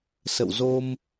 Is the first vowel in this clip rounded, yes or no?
no